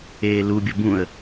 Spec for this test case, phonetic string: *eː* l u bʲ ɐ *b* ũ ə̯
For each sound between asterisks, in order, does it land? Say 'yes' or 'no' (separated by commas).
yes, yes